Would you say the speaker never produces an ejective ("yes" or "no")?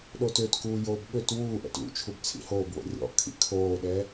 yes